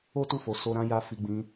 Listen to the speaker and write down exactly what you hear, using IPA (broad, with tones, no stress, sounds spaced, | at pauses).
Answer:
o˦ t u˦˨ f o˧ s o˧ ɾ ã˧ j a˧ f i˧ ɡ͡b ĩ˦